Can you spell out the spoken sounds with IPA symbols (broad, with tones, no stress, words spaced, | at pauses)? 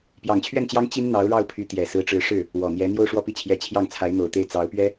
pjɑ˨˩ŋt͡ɕʰɥɛ˥˩nt͡ɕjɑ˥ŋ t͡ɕi˥n n̪ɑ˧˥ʊ̯ɻɑ˥˩ʊ̯pʰy˧˥ t̪jɛ˨˩sɹ̩˧˥ʈ͡ʂɻ̩˧˥ ʂɻ̩˥˩ | wɔ˨˩n̪jɛ˧˥ n̪jo˥˧ʊ̯ʂwɔ˥˧pi˥˩t͡ɕʰjɛ˧˥ t͡ɕʰjɑ˥˩ŋt͡sʰa˧˥ɪ̯n̪o˨˩ʊ̯t̪e˥˩ɪ̯ t͡sɑ˧˥ʊ̯pɥɛ˥